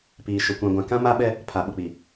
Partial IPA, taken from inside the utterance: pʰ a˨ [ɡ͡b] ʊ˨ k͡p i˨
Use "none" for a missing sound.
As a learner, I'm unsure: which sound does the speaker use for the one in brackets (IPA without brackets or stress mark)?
ɓ